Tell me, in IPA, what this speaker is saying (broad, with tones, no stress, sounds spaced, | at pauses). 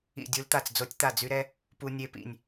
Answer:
ḭ˧˩ dʲ u˧ l t̪ a˧˩ t͡s d͡z o˧ tʲ t̪ a˧˩ d͡z y˧ ɾ ɛ˧ | p u˧ nʲ e˧ p ḭ˧˩ nʲ